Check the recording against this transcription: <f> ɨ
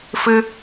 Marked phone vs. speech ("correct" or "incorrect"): correct